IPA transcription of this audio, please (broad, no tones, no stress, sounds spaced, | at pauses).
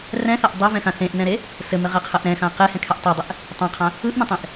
r ɛ̃ θ a ʔ dˤ a v ɛ̃ x ã θ ẽ ʔ n ɛ̃ ɾ e | s ɘ m ɘ ʁ ɛ qʰ ə ʔ ɾ ɛ̃ x ã q e h ɛ̃ kʰ ɛ ʔ tˤ e dˤ ɘ ʔ | tˤ ã qʰ ã | ɯ ʔ n ə̃ tˤ ẽ ʔ